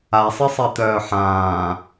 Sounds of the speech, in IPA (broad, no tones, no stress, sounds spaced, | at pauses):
a sˤ i sˤ ɛ t̪ œː ħ ãː